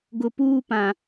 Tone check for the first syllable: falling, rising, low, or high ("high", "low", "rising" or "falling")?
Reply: low